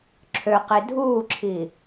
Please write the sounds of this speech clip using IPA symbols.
ǁʰ ø q i dʱ uː ǁʰ i

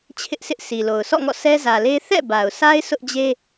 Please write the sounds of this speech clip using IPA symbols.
t͡ɕʰ ɪ˦ ʔ sʰ ɪ˦ ʔ sʰ i˨ l o˨ ʊ̯ sʰ ɔ̰˦˨ ŋ ɔ̰˦˨ s ɛ˦ z ä˨ l e˦ θ ɛ̰˦˨ b a˨ ʊ̯ s a˦ ɪ̯ sʰ ʊ˦ ʔ d͡ʑ e˦

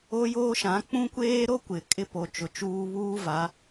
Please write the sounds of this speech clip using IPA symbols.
o˦ j oː˦ ʃ ã˨˦ k͡p ũ˦ kʷ eː˦ ɾ o˦ kʷ ɪ˨ kʼ ɪ˦ p o˨ t͡ʃ ʊ˨ t͡ʃ uː˦ β uː˦ v a˨˦

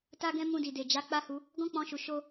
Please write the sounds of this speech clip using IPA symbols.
t a˧ ɡ ɛ̃˧ m ũ˧ d i˨ d e˨ d͡ʒ a˨˦ k͡p a˦ h u˧ | ɡ ɔ̃˦ k͡p ɔ̃˧ ʃ u˨ ʃ o˧

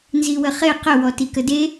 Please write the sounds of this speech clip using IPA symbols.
n z i w ə χ e q ə w ɔ t i k ə d e

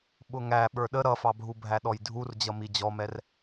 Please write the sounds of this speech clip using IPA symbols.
ɓ ʊ ŋ æ ɓ ə˞ ɗ ə ɾ ʌ f ɑ bʱ u bʱ æ ɗ ɔ j dʱ u r d͡ʑ ʌ m i d͡ʑ ɔ m ɛ r

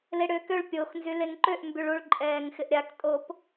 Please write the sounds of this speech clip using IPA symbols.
l e ɽ ʏː k ø ɭ pʲ o x n z y l e ŋ ǃ ø ʔ m b y ɭ u ɭ ǃʼ ɛː ŋ x ɪ ʔ ɾʲ a k tʼ o p

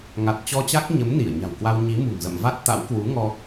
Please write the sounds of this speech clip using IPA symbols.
ŋ a˨˩ t̚ t͡ɕ ɔ˧ t͡ɕ a˦˥ k̚ ɲ ə˨˦ m n i˧˩ ə̯ ɲ a̤˨˩ w k w a˧ w ɲ i˨˦ m ṳ˨˩ ŋ z ə̰˧˨ m v a˦˥ t̚ t̪ a̰˧˥ w k w u˨˦ ŋ ɔ˧

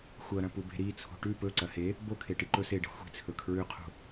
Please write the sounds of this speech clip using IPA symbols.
xʷ ɐ ɾ ɐ̃ p u b e̤ ɾ i t͡sʰ o̤ ʈ ʉ p ɵ ǀ ɐ h e | b o kʰ e ʈ i ǃ ɵ s e ɖ e̤ xʷ i̤ t͡sʰ ɵ kʰ ɹ ʉ qʰ o̤

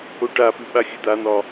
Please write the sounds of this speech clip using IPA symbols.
o ʈ a p ʉ ɓ a xʲ ʉ d̪ a n̪ ɒ

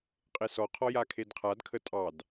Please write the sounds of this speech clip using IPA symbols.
qʼ e s ɔ qʰ ɔ j a kʰ e d qʰ a d kʰ ə tʼ ɑ d

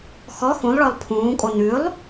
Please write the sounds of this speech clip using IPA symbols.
x ɔ x ũ lˠ ɭ ɔ lˠ pʰ ũː kʼ o n ʉ lˠ

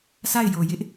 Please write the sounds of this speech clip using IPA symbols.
sʰ a˦˨ ɪ̯ j o˨ j ɪ˦ ʔ

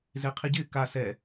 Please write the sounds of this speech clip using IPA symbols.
z e qʰ i ɟ ɪː k a s ɛ

